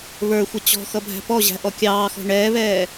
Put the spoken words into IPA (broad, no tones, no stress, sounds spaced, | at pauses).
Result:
β ə˞ xʷ ʌ t͡ɕ ɔ̤ x ʌ bʱ æ̤ p ɔ ʑ æ̤ ʔ ɔ kʲ ɑː x ɔ̤ ɳ ɛː β ɛː